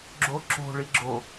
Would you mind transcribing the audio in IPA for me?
ɡ͡ǁ o ǁ o̤ ɭ i ɡ͡ǁ o

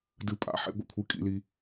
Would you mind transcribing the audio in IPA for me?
d ɨ˧ pʼ a̰˨˥ ħ ḛ˨˥ ɡʷ ḛ˧ kʷʰ ɨ˨˥ kʼ ḭ˧ l i˧

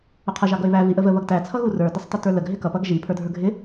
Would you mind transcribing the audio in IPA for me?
ʊ qʰ ə ʒ ɑ ɡ ʌ ɪ̯ β æ v i ʔ ə v ə β ʌ ɡ t æ t͡sʰ ʌ ɣ u r ə˞ d ɪ sˤ t ə t ə˞ l ə ɡ ɦ ɪ k ʌ p ʌ ɡ ʒ i pʰ ə˞ dʱ ə˞ ɡʱ ɪ

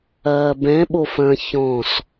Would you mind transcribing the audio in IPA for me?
ɐː b ɛ̃ ɓ o f ɐ̃ ç ɔ̃ s

